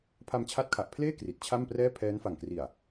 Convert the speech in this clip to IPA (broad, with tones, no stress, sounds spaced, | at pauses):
pʰ a˧ m t͡ɕʰ a˦˥ t̚ kʰ a˨˩ ʔ pʰ l eː˥˩ k r i˨˩ t̚ t͡ɕʰ a˥˩ m p r ɛː˥˩ pʰ ɛː˦˥ n f a˨˩ ŋ k r i˨˩ a̯